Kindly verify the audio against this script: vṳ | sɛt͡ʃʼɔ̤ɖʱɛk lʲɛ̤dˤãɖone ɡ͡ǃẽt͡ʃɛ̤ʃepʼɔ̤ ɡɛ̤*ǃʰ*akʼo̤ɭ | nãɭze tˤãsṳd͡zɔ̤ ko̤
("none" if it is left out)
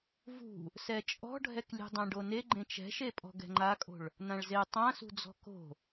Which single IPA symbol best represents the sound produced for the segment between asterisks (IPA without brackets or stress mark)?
ŋ͡ǃ